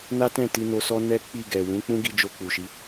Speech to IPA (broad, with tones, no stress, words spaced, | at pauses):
na˦tɛ̃˦˨ ti˧no˧sɔ˦ nɛ˦k͡pi˦˨ɡɛ˨ wũ˨˦k͡pũ˦ɡi˧ d͡ʒo˧k͡pu˨ʃi˨˦